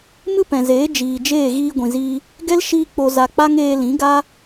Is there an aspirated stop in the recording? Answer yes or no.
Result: no